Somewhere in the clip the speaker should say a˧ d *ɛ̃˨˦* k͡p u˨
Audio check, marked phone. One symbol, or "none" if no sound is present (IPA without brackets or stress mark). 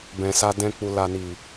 ɛ̃˧